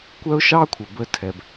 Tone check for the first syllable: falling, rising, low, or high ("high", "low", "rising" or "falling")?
high